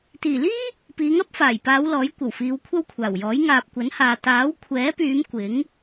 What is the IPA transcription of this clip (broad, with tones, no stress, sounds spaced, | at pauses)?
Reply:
t̪ iː˨˩ l iː˥ | p iː˨˧ ŋ ɐ˥ p̚ f aː˨˩ j p aː˨˧ w l ɔː˨˥ j kʷ ɐ˨˩ w f iː˨˧ w kʷʰ ɐ˥ w kʷʰ aː˨˩ w j ɔː˨˥ j ŋ aː˨ p̚ kʷ ɐ˨˥ n h aː˨ t̪ aː˨˥ w kʷʰ ɛː˨˥ p yː˨˧ m kʷ ɪ˨˥ ŋ